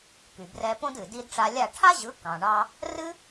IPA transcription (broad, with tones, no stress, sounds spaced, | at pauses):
k y˩ b r ɛ˧ p õ˥ d ɨ˩ d i˧ d ʈ͡ʂ a˧ lʲ a˥˩ ʈʰ a˥ ʑ ɯ˩˥ k ɑ̃˩ ɳ ɑ˧ | r ɨ˥